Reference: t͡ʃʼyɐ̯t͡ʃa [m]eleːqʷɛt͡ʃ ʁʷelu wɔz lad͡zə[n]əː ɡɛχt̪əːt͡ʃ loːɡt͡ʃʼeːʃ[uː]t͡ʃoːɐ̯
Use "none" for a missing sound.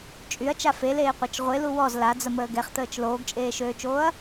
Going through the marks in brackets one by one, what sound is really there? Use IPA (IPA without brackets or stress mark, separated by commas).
f, m, øː